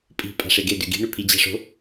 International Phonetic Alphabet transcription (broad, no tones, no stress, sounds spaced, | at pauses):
pʼ i̤ pʼ a̤ ʂ e ɡ e d ʉ ɡ i̤ ɳ ʉ pʰ i d͡ʑ a̤ ʂ o̤